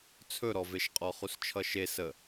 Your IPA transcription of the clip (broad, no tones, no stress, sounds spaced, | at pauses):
t͡sʰ ɵ ɾ ɔ v e ʃ qʼ ɔ χ u s t͡ʃʰ ʌ ʃ e s ə